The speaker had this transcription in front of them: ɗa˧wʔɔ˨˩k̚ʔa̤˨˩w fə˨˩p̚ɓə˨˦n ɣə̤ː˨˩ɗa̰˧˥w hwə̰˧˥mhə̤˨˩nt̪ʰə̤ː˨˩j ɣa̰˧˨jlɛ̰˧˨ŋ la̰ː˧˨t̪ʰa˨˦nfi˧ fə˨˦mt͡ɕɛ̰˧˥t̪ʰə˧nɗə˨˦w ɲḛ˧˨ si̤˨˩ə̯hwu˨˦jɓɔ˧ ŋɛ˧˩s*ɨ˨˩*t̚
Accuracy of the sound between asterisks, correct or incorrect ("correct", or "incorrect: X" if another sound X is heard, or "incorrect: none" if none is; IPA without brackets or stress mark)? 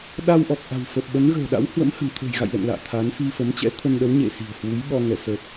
incorrect: ə˨˩